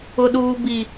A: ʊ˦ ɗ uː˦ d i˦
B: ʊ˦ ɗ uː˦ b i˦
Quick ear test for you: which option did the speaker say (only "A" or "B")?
B